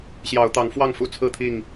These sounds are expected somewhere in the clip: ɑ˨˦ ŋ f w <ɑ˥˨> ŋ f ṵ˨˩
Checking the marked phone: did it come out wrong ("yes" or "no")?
no